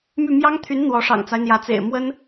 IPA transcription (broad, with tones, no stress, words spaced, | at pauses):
my˥˩ mjɑ˥ŋt̪ʰy˧˥n n̪wɔ˧˥ ʂɑ̰˨˩ŋt͡sa˦ɪ̯n̪jä˧˥ t͡sḛ˨˩ɪ̯ mwə˥n